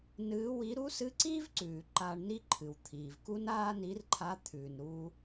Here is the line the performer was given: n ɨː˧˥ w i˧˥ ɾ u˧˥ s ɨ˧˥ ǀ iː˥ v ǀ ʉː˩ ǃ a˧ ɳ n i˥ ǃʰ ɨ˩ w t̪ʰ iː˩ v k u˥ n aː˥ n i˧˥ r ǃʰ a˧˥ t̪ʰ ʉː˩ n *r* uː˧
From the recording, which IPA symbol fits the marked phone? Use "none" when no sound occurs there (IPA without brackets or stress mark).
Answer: ɾ